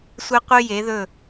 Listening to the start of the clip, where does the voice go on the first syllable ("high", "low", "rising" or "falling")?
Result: high